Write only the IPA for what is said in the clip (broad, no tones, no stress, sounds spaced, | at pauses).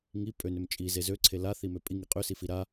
ŋ i pʼ ø n ø m t͡ʃʼ i z e z ø ǀʰ e l a θ i m ø pʼ i ŋ i qʼ ø s i f i ɾ a